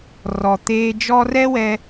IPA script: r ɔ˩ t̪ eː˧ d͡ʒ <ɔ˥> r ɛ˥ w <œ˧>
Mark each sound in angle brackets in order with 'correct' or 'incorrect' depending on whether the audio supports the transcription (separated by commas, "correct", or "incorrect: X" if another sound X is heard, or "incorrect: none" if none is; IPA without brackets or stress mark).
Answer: correct, incorrect: ɛ˧